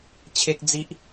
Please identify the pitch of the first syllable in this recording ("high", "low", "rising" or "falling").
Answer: high